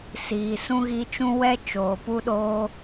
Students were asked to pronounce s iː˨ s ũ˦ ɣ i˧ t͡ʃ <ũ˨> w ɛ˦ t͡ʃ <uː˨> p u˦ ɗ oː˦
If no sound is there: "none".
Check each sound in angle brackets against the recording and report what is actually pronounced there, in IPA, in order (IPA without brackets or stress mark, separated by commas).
ũ˦, oː˨